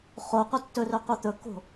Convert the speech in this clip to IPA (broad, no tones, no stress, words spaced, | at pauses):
χoqʷʌ tːɵrɵqʷʌ t̪ɵkːo̤